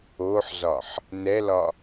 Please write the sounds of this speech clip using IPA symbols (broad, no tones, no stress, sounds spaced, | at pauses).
o ħ z ɒ ħ | n ɛ l ɒ